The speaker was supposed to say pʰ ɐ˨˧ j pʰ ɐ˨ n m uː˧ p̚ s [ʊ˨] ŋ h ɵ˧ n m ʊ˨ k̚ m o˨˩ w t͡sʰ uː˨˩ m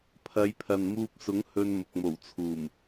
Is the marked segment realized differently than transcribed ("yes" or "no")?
yes